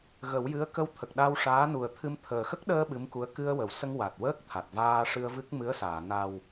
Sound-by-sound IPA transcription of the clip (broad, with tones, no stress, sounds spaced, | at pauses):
ɣ ə˨˩˦ w j ɨ˧˥ ə̯ k ə˧ w t̪ʰ ə˨˩ k̚ ɗ a˧ w ʂ aː˧˥ n u˨˩ ə̯ t̪ʰ ɨ˧ m t̪ʰ əː˨˩ x ə˦˥ k̚ ɗ əː˧ ɓ ɨ˧˥ m k u˧˥ ə̯ k ɨ˧ ə̯ w ə˨˩˨ w s ə˧ ŋ w a˨˩ t̚ w əː˦˥ k̚ t̪ʰ a˨˩ t̚ v aː˧ ʂ ɨ˧ ə̯ v ɨ˦˥ k̚ m ɨ˧˥ ə̯ s aː˨˩˨ n a˨˩ w